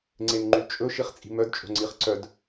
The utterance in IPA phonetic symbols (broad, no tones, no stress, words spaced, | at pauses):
ŋ͡ǀenŋ͡ǃyt͡ʃʼɵ ʃiχt͡sʼi̤mœd t͡ʃʼo̤ŋ͡ǀiχǀœd